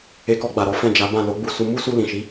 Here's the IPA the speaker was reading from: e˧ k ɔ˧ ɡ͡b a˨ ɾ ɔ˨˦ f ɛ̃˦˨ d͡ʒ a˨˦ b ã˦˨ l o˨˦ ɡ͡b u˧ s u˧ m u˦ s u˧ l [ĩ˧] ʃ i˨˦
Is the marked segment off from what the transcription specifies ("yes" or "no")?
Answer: yes